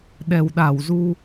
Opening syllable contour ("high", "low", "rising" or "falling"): low